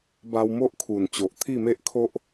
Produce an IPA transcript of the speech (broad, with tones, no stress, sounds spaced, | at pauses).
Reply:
b a˧ w m o˦ ʔ kʰ u˨˩ n t͡ɕ o˨ ʔ t̪ʰ i˥˧ m e˦ ʔ kʰ o˦ ʔ